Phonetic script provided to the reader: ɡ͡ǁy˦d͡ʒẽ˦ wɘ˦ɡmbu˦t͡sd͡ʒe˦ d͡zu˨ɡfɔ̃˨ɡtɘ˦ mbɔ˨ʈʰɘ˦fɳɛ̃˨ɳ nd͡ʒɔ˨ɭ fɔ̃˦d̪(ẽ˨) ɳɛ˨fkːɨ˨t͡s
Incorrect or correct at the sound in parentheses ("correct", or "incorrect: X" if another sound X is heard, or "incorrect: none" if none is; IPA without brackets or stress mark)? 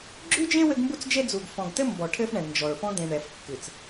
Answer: correct